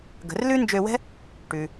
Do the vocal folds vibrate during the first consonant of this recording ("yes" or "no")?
yes